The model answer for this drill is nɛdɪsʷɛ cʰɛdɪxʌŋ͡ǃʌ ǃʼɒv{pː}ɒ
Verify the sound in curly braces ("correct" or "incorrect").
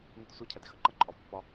correct